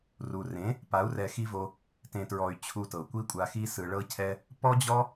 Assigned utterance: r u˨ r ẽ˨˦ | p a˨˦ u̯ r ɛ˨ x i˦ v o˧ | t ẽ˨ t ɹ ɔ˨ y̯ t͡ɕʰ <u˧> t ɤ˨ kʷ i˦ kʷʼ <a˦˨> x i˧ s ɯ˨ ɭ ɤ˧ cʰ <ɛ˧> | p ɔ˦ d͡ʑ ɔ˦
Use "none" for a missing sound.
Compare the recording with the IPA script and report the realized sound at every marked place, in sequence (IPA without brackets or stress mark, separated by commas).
u˧, a˧, ɛ˧